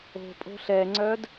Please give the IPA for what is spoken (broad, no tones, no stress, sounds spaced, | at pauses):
o̤ pʼ o̤ ɬ ɛ ŋ͡ǀ œː d